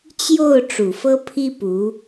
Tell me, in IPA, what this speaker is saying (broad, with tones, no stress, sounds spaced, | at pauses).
t͡ɕ j o˥˩ ʊ̯ ʈ͡ʂ u˨˩ f ɤ˥ pʰ i˥ p u˧˥